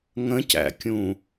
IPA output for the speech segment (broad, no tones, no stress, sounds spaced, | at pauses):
ŋ ə̃ c æ̰ kʲ ũ